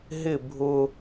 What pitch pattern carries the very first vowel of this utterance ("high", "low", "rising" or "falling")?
falling